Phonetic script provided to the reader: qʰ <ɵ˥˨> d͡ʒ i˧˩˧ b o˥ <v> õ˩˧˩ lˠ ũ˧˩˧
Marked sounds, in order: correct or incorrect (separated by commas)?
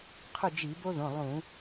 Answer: correct, incorrect